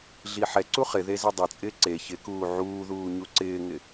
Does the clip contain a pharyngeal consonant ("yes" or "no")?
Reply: yes